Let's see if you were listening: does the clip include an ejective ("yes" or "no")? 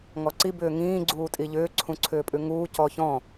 yes